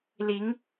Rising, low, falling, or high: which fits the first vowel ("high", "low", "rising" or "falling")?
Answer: rising